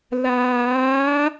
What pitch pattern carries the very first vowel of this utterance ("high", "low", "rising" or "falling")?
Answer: rising